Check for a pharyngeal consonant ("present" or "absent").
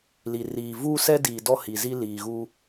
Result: absent